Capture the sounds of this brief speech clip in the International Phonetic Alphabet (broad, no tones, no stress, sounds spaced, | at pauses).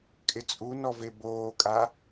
kʼ ɪ t͡sʼ u n ɔ v e b oː kʼ a